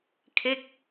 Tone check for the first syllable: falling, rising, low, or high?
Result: falling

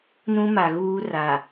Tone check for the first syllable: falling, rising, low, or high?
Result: high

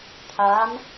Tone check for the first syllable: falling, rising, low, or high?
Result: rising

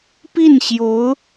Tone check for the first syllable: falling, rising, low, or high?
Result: falling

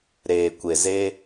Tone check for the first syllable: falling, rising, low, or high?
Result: low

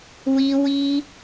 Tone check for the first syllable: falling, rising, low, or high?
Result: high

